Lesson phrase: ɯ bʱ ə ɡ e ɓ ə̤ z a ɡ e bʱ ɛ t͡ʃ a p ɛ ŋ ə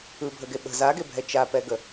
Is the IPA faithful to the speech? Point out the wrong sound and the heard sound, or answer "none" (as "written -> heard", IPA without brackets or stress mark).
ŋ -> ɡ